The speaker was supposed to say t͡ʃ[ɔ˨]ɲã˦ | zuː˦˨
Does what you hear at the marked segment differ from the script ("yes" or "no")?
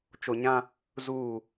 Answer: yes